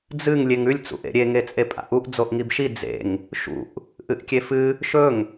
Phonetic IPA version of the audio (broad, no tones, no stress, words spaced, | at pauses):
d͡zɨŋ lʲeŋʉlʲ t͡sṵʔḛɾʲe ŋet͡sʼepʼa̰ʔuʔ d͡zoʔŋibʃi d͡zḛŋ | ʃṵʔ | ʔɨʔkʲefɨ | ʃɵŋ